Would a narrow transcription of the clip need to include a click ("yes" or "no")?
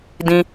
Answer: no